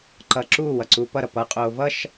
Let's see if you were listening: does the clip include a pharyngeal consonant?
no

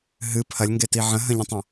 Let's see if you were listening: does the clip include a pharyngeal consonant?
yes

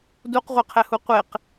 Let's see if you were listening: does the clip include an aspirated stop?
yes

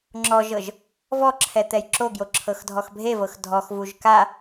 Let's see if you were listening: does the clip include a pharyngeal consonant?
no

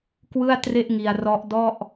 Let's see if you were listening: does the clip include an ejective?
no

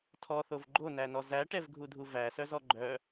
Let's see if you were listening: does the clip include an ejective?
no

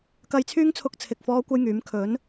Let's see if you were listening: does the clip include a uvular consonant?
no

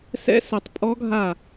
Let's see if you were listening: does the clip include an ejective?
yes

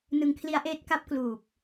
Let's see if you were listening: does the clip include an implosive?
no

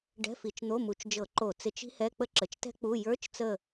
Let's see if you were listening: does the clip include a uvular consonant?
no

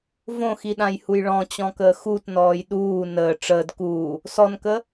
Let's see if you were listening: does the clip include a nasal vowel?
yes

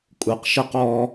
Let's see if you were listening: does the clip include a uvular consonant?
yes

